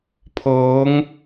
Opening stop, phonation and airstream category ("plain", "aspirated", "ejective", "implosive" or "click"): aspirated